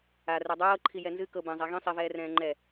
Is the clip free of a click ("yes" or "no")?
no